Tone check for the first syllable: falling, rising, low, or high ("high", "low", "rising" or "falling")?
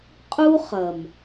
high